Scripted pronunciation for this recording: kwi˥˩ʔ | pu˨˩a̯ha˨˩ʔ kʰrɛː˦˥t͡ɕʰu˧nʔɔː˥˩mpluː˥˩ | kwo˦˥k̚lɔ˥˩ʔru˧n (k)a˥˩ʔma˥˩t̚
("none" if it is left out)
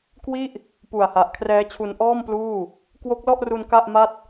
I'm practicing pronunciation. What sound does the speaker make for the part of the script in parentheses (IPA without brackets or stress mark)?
k